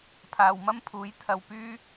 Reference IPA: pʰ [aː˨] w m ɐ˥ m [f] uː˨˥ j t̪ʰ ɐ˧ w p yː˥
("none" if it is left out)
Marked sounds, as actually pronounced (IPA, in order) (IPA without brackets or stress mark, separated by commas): aː˨, pʰ